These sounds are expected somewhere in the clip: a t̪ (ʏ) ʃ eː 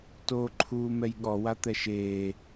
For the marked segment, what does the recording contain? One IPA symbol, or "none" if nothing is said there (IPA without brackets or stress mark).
ɛ